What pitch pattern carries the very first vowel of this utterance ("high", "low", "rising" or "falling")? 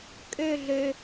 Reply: falling